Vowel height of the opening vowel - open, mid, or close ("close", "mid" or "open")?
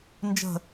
mid